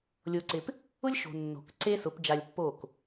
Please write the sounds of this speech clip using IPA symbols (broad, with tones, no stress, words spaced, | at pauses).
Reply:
lʲo˧ǀɪ˧p | ʊ˦lʲʃo̤˨ nːo̤˨kǀe˦sʊ˨˦p d͡ʒa˧lʲpːo˦˨k